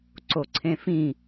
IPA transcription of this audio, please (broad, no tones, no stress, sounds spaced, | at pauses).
ǀ o ǀʰ ẽ f ĩ